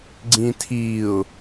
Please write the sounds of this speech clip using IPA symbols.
ɡ͡ǀĩtʰiʊ̯

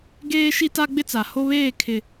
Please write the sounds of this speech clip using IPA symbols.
ɡeː˦ʃi˦ ta˦ɡ͡bɪ˦t͡sa˨ ho˦βeː˦˨ kʰɪ˨

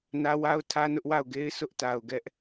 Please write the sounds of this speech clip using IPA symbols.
nä˦wa˦ʊ̯tʰä˦ nʊ˦ʔwa˦˨ʊ̯ɡe˦ɪ̯ sʊ˦ʔta˨ʊ̯ɡɛ˦ʔ

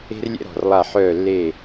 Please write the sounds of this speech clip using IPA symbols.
e̤˥rlʲɛ̰˥ɾɔ̤˩˧˩rlˠa˦˨ ħœː˦˨lːe˦˨

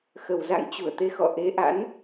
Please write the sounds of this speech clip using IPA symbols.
xə˨˩wza̰˧˨ŋ t͡ɕu˧˩ə̯t̪e˨˦xɔ̰˧˨ ʔe˨˦ʔa̰˧˥n

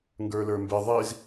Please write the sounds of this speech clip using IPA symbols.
ŋɡə˞lə˞mbɪ ðˤiz

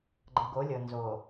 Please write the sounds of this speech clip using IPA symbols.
ɡ͡ǃə˨ɡo˨˦lʲɤ˨ nzo˨

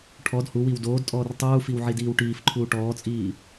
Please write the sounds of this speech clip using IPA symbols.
ʈʰɔd huwiw doːdtʼɔːr tˤuːfiw ʕidiːwʈiːfǃʰuː ʈɔːt͡sʼiː

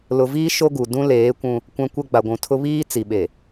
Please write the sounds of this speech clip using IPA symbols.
lʊ˨viː˦ ʃo˦ɡu˨ dũ˦leː˨˦kʷũ˦ | kʷã˦kʷɛ˦ ɡ͡ba˨ɡʷũ˨tʰʊ˦ βiː˦ t͡si˨ɓe˨

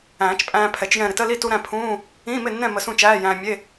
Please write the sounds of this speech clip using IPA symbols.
æ̃ː˨˩˦t͡ʃpʼæ̃ː˧ pʰɛ˩˥t͡ʃjɛ̃˥˨ ɾɪ˧tə˧˥˧li˥˨tu˧ ɾæ̃˥˨pʰũː˧˥˧ | ĩː˧˥˧mɪ˥˨nːɛ̃˥˨ mə˧sũ˥˨t͡ʃæː˧˥˧ jæ̃ː˧mʲe˧˥˧

